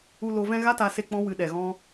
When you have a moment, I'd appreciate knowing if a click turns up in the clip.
no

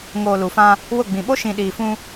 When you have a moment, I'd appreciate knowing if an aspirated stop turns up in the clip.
no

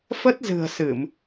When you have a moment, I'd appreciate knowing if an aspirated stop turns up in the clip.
no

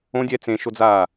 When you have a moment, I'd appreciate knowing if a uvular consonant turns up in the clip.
no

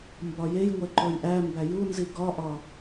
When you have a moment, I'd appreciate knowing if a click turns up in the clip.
yes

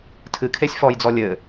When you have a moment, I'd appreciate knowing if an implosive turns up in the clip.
no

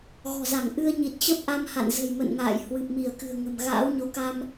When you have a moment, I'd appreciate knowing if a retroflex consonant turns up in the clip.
no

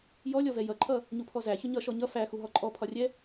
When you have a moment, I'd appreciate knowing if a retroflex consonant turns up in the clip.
no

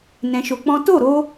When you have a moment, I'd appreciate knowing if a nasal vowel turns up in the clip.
yes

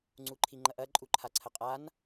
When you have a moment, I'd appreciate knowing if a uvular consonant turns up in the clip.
yes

